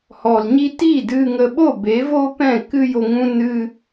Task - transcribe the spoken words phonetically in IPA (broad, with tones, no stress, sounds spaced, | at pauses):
h ɔ˨ l ɲ i˧ t i˦˨ d ɨ˧ ŋ ə˧ ɓ o˦˨ b e˨˦ v o˦ p ɛ̃˦˨ k ɨ˦ j o˧ ŋ ũ˦ n ɨ˦